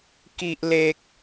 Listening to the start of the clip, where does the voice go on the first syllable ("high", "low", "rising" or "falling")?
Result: high